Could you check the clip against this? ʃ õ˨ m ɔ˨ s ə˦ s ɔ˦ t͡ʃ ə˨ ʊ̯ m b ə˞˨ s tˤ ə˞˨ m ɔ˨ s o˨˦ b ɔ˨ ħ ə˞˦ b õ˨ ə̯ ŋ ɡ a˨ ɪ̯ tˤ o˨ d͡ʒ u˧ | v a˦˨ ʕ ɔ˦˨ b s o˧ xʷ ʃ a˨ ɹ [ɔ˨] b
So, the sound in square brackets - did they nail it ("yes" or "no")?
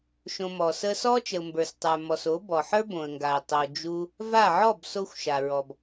yes